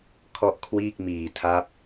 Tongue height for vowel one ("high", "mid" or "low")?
mid